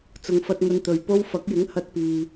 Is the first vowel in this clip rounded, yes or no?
yes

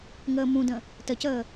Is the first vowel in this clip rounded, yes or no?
no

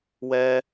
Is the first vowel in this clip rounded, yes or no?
no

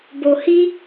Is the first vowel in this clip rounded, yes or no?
yes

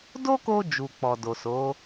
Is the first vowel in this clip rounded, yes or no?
yes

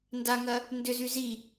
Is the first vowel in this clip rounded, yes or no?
no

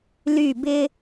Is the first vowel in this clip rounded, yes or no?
yes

